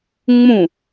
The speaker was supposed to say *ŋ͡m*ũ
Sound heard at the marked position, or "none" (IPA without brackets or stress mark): ŋ͡m